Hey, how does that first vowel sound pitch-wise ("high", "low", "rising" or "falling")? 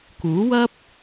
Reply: rising